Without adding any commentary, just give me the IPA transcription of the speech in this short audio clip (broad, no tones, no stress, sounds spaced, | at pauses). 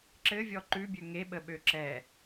ǁ ɘ vʲ ɔ ǃ ʉ bʲ ø ŋ e ɓ ə ɓ ø ǁ ɛ